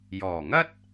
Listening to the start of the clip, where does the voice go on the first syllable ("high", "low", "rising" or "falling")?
low